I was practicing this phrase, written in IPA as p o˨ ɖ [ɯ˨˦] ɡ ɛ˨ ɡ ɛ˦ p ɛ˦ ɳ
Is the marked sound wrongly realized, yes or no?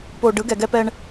no